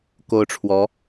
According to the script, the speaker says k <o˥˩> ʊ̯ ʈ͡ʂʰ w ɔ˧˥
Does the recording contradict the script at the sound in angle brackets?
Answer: yes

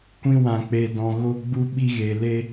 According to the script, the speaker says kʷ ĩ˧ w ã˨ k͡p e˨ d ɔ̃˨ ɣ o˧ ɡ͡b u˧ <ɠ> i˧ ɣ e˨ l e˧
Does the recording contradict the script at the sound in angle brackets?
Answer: yes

